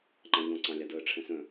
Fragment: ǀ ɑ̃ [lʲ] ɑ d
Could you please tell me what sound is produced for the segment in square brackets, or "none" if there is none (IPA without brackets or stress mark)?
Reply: lʲ